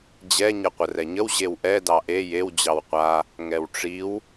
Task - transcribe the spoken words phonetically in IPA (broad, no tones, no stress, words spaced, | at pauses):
d͡ʑɛ ɲɛqʷərɛɲəw ʑewʔɛ dɑʔe jew d͡ʑɑwqʷa | ŋɛwʈ͡ʂiw